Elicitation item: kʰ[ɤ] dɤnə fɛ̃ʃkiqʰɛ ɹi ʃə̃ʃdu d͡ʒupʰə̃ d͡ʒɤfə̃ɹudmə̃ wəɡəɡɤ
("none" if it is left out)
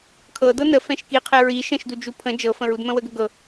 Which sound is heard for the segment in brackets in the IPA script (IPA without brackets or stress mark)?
ɤ